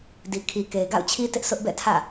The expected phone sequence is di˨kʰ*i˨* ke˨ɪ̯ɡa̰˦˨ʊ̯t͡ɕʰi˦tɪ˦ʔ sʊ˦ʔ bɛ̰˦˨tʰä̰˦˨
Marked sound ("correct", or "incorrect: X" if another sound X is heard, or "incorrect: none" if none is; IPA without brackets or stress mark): correct